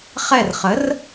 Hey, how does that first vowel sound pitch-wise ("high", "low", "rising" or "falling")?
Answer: falling